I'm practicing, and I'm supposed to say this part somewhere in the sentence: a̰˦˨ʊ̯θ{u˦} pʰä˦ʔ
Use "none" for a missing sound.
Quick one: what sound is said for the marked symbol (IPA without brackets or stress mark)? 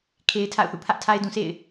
ṵ˦˨